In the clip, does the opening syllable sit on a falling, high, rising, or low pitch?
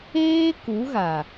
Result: high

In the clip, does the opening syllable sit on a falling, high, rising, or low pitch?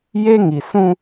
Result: high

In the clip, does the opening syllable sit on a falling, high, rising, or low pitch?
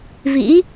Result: rising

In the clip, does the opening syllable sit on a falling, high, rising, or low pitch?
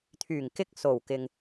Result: low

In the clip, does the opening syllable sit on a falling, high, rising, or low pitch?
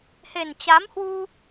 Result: low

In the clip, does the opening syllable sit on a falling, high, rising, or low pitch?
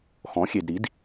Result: rising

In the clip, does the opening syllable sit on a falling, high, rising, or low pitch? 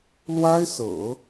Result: high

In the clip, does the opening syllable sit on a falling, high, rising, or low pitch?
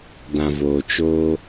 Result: low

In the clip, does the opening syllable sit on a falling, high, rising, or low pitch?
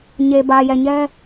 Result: low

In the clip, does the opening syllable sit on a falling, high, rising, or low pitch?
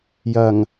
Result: low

